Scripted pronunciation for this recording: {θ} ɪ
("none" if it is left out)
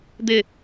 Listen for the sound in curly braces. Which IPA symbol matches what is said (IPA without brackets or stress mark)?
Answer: d̪